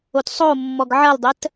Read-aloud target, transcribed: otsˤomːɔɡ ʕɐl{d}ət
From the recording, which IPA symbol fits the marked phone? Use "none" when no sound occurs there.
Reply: dˤ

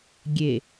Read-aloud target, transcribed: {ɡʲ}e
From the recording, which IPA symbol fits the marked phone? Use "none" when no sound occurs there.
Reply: ɡʲ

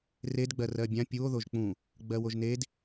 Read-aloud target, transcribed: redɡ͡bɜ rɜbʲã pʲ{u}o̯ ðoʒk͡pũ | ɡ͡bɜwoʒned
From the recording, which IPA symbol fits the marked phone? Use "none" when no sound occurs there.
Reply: u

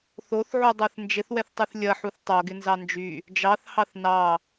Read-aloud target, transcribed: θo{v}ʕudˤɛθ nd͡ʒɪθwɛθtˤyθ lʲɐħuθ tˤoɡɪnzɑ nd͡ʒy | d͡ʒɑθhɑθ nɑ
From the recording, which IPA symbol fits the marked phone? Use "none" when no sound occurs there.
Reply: θ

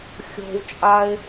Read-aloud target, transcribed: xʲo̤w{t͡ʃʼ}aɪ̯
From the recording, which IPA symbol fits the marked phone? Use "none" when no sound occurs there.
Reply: t͡ʃʼ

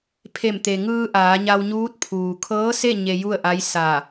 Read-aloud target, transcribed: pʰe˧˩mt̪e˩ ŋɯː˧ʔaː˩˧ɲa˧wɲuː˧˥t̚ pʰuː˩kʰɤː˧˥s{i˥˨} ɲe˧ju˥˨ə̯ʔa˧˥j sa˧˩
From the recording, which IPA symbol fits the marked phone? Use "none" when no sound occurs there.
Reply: e˥˨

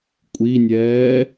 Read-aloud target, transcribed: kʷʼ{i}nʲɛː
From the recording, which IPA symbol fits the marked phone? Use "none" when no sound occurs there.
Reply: i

